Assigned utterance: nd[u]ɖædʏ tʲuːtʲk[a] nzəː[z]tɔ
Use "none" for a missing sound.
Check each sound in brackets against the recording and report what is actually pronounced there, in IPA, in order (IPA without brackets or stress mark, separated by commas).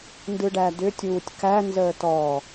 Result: ɯ, æ, none